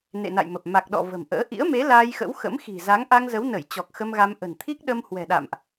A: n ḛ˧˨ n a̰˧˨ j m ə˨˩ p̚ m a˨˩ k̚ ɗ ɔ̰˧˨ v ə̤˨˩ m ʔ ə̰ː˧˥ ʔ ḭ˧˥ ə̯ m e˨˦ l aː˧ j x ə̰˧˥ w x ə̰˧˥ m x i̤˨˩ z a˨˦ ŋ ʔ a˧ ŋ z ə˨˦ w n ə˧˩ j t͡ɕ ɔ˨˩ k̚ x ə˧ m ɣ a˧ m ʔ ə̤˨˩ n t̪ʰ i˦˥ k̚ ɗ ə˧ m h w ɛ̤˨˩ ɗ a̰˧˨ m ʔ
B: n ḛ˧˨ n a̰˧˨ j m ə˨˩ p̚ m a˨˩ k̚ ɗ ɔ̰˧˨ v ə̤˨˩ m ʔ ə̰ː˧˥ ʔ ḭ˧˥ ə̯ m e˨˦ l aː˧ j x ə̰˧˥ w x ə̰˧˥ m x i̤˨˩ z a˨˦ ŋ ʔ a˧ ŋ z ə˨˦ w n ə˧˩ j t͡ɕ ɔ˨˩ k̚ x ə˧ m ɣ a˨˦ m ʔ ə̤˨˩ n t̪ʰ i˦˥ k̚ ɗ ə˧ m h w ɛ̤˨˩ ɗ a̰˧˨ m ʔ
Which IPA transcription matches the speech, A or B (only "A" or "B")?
A